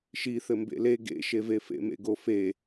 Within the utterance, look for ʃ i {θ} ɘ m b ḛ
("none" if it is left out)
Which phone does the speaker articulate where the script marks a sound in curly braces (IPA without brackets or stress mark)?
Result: θ